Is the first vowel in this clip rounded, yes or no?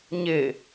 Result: no